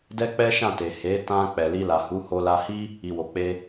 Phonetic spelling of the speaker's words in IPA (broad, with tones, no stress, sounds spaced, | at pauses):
d ɛ˦ k͡p ɛ˦ ʃ ã˦˨ t e˨ h e˨˦ t ã˧ k͡p ɛ˨ l i˧ l a˨ h u˨˦ h o˧ l a˧ h i˦ | i˨ w o˨ k͡p e˧